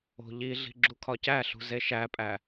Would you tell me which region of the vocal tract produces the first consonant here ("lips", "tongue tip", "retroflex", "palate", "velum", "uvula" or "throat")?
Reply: palate